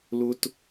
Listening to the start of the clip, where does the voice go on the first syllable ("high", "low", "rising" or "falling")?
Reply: high